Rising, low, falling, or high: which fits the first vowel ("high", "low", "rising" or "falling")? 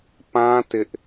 high